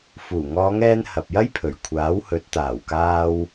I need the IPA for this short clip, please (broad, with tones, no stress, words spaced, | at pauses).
fuː˨˩ŋɔː˨˧ŋɛː˧n hɐ˨p̚jɐ˥jpʰɵ˨˩ɥ kʷʰaː˨˥whɵ˨˥t̚ t̪aː˨˩wkaː˧w